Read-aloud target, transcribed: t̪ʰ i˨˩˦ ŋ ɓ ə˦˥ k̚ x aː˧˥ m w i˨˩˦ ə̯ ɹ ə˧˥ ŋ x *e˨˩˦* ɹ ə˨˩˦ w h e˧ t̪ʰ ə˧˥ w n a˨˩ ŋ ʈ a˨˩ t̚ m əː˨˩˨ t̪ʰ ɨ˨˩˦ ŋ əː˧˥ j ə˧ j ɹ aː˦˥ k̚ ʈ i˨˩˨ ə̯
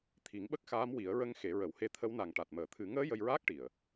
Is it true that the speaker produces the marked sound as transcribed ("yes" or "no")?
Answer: yes